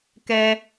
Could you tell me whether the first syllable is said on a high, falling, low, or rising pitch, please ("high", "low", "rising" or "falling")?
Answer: high